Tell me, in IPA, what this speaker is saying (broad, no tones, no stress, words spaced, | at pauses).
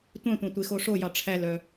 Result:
tʷœ̃tʷæ̃ tʷexoʂojɑ ʈ͡ʂʰælœ